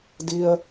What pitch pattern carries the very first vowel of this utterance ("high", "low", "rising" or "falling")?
low